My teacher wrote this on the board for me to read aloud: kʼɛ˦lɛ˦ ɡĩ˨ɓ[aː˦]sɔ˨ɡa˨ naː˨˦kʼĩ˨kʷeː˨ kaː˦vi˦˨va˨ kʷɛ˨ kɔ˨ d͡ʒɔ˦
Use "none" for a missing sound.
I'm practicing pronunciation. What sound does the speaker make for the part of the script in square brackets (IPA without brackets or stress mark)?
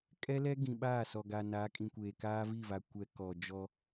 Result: aː˦˨